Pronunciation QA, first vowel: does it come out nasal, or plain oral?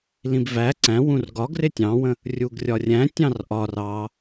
nasal